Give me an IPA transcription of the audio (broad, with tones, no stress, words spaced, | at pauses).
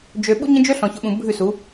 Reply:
d͡ʒø˨ ɓṵ˦ɲə̃˦d͡ʒø˦ ɬɔ̃˨çʊ˨ɓũ˨ bʱʉ˦˨su˨˦